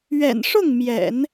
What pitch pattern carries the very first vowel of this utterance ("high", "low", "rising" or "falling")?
low